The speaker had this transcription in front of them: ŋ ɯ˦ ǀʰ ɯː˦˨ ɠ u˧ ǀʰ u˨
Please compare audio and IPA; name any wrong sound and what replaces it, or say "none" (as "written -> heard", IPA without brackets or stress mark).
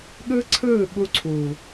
ŋ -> ɠ